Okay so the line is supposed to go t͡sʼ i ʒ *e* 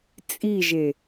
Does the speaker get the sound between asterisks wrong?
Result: no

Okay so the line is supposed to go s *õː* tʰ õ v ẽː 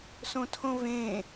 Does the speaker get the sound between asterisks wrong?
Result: yes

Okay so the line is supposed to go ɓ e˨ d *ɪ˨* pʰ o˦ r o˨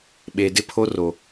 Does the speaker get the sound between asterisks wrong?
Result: yes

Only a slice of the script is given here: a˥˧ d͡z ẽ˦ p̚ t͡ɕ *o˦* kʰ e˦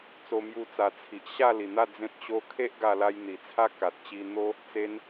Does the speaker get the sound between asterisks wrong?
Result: no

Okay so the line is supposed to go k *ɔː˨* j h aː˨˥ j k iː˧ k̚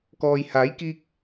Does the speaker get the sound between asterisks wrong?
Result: no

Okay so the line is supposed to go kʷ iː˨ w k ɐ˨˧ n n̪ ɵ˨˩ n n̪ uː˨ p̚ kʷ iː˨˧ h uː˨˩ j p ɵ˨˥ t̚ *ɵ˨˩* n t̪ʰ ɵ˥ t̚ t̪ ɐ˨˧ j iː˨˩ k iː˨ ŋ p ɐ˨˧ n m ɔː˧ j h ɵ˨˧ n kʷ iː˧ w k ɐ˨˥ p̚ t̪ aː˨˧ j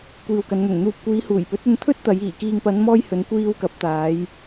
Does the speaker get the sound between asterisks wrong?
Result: yes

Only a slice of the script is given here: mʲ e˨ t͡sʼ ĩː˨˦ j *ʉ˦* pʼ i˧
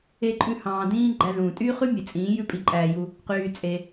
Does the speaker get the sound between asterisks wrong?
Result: no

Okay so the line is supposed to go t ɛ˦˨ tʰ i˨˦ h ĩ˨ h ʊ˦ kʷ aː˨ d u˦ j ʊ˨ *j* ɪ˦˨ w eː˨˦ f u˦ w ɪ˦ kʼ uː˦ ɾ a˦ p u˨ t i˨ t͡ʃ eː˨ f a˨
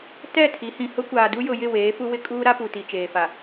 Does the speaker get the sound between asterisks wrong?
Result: no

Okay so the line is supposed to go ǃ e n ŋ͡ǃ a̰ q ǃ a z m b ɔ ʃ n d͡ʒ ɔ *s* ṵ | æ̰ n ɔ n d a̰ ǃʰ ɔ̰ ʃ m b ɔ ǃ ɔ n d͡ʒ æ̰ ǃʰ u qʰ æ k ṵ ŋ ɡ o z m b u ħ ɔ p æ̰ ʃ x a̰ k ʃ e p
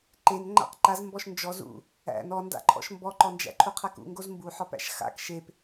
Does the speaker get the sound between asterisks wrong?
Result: yes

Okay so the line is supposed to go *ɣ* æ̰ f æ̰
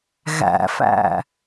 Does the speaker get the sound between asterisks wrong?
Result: no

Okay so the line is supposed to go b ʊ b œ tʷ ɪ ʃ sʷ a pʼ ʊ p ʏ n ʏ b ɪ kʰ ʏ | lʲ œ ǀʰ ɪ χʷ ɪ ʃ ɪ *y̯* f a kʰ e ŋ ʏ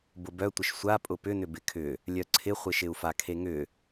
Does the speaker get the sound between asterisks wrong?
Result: yes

